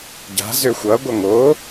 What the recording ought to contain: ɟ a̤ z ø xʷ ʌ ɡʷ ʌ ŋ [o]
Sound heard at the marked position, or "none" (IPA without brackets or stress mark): o